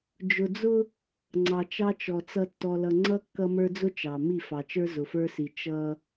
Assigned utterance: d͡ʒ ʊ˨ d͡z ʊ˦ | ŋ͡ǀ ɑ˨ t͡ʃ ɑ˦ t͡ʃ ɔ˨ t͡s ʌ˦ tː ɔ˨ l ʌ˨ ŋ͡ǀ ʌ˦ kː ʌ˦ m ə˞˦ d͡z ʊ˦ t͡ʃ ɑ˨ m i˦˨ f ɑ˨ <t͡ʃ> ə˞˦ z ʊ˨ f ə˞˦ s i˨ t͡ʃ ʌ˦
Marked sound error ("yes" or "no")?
no